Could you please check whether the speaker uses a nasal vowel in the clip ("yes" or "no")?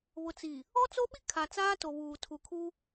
no